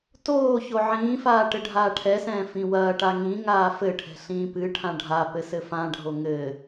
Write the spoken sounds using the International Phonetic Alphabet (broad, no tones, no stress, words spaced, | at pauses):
toː çoʕĩːfaː ʈɘɖʱaːʈʰɛsɛ̃ː fĩwɐːʈa ŋĩ ŋaːfɘʈʰɛ̤ ɬĩːpɨʈʰã ɖʱa pɘsɘfãɖʱo ŋɘ